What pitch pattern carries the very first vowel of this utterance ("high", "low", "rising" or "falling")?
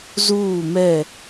falling